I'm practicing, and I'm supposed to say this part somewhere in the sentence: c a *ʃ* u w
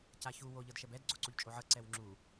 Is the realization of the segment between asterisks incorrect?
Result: yes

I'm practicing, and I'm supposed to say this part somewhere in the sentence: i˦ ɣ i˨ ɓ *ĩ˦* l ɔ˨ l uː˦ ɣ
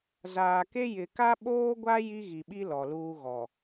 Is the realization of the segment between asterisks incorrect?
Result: yes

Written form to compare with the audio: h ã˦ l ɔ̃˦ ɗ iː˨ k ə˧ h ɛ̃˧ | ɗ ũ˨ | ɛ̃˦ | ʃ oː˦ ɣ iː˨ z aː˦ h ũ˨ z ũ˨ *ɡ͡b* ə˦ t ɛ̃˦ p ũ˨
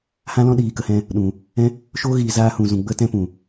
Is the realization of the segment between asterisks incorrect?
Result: no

